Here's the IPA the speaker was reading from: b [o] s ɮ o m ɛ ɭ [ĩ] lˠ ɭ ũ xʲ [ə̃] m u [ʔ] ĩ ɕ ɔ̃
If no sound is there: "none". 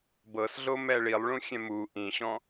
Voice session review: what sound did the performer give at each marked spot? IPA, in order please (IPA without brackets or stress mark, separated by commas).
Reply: ɤ, i, ɛ̃, ʔ